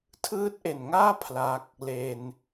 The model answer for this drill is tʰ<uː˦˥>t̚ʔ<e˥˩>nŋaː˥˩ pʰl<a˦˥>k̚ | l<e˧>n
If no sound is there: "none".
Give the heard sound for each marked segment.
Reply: ɯː˦˥, e˨˩, a˦˥, e˧

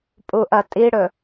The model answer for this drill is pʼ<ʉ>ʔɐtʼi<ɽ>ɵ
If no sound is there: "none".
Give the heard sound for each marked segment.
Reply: u, ɽ

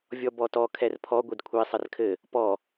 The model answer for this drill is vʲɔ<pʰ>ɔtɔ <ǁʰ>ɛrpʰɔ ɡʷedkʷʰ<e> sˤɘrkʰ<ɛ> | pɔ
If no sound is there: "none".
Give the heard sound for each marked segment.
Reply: b, kʰ, e, ɘ

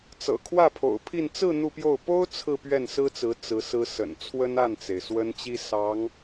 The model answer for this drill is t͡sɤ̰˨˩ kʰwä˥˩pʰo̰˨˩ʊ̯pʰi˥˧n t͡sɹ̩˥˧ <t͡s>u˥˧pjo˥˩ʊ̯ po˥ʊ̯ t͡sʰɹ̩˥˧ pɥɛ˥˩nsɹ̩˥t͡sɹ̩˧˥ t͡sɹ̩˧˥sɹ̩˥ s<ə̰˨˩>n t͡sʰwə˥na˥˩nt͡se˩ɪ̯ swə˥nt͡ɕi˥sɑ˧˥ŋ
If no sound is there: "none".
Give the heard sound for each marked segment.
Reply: n̪, ə̰˨˩

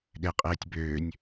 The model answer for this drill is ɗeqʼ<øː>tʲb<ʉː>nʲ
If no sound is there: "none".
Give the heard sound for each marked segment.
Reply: eː, øː

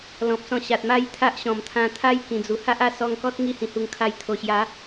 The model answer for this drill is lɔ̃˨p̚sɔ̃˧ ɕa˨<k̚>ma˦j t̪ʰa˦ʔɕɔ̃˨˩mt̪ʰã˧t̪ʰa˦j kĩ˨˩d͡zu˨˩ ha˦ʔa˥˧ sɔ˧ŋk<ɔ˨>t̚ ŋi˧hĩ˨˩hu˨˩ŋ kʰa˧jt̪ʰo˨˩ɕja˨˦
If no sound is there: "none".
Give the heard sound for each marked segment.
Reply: t̚, ɔ˦

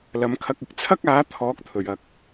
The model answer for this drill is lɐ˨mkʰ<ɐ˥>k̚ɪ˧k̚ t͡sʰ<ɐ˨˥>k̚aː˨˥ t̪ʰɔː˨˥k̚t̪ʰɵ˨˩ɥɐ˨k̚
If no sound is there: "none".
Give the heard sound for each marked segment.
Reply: ɐ˧, ɐ˥

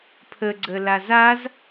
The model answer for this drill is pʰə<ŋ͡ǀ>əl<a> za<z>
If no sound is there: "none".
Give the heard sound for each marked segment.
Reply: ɡ͡ǀ, a, z

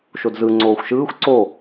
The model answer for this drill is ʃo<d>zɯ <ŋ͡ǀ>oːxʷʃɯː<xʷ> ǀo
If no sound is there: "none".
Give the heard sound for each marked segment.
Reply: d, ŋ͡ǀ, xʷ

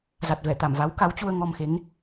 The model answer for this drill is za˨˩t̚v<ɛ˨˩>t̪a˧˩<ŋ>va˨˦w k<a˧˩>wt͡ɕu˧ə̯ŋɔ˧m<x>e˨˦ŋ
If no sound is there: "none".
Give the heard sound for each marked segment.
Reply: ɛ˧˩, m, a˨˦, x

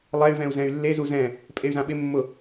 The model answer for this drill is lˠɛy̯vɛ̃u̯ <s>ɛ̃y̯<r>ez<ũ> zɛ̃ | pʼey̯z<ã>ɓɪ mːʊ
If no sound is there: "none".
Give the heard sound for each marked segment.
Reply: z, lː, u, ã

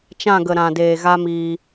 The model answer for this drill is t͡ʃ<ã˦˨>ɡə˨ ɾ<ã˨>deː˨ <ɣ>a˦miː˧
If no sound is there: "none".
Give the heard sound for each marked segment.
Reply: ã˦˨, ã˨, ɣ

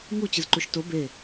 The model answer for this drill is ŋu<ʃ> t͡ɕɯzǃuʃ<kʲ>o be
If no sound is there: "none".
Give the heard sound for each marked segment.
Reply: none, t

